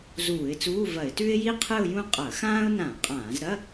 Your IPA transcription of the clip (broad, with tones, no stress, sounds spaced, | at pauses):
z uː˧˩˧ ɪ̯ t͡s uː˧˥˧ v ɐ˧˩˧ ɪ̯ t ʉ˥ ɪ̯ j i˥˧ qʰ ɨ˥˧ ʊ̯ j ũ˥˧ qʼ ɐ˧˩˧ x ãː˥ ʊ̯ n ã˧˩˧ qʼ ãː˧˩˧ z ɾ ɐ˧˥˧